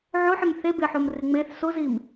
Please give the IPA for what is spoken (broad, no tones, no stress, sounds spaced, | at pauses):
ʕ o ħ ɪ m θ e b ɪ ħ o m r ɪ ŋ͡m e θ s o z i m